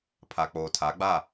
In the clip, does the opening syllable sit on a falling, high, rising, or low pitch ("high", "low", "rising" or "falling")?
low